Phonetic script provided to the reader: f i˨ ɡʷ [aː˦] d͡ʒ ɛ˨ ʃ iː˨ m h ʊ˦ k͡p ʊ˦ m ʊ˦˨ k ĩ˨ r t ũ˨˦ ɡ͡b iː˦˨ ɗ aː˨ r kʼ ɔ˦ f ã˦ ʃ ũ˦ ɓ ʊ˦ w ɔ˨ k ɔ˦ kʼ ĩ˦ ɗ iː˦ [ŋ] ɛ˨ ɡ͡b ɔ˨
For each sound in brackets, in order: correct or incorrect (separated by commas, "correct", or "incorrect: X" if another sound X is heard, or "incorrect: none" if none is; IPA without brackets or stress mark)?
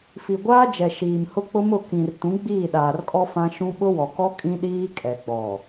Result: correct, incorrect: kʼ